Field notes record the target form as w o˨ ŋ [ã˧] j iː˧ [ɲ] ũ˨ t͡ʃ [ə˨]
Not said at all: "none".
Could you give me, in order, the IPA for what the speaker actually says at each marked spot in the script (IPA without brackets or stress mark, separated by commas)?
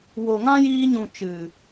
ã˦, ɲ, ɨ˨